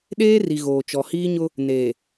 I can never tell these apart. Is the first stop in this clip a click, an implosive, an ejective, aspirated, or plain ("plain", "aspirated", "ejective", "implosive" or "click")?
implosive